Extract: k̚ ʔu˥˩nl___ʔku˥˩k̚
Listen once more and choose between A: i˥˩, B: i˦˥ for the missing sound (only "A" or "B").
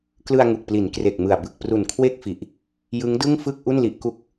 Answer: B